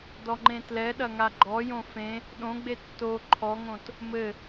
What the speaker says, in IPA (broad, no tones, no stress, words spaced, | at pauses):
dɔŋ͡ǃẽtlɛɗɐ ŋaɡ͡ǃɔjõ fẽ | ɗõɡ͡be tːo ǃʰɔŋõt | mɘ